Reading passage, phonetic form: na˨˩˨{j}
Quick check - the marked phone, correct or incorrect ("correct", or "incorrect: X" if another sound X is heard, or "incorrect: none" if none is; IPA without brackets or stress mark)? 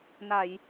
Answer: correct